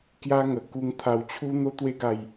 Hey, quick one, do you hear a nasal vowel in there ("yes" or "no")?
no